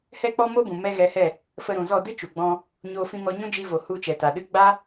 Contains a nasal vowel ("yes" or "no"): yes